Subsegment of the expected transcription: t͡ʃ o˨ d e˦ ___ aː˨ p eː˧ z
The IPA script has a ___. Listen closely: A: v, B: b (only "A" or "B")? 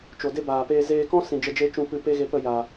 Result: B